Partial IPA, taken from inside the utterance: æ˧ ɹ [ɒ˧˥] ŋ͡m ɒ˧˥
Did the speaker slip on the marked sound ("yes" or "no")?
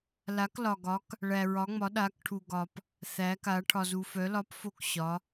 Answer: no